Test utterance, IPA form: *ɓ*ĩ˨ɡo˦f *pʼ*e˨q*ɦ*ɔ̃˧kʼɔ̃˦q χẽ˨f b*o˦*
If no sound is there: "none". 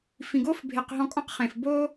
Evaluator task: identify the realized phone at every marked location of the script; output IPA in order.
f, bʱ, ɦ, o˦

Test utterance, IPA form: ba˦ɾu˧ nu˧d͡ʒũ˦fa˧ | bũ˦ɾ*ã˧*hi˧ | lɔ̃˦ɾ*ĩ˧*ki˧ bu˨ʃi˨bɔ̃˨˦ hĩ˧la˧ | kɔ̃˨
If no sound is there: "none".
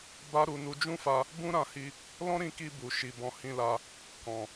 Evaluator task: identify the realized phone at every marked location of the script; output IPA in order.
ã˧, ĩ˧

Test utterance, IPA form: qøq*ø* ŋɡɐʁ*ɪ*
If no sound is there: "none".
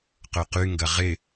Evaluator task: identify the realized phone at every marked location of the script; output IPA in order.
y, ɪ

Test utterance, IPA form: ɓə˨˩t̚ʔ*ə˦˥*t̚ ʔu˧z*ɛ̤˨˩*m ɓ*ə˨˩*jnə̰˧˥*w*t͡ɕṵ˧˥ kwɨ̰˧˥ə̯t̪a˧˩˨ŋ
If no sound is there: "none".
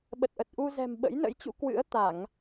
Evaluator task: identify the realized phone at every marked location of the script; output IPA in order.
ə˨˩, ɛ̤˨˩, ə̰˧˥, j

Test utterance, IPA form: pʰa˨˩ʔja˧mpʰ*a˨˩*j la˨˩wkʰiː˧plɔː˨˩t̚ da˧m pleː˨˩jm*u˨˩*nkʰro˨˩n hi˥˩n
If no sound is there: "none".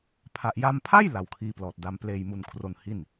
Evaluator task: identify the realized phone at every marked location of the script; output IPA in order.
a˥˩, u˨˩

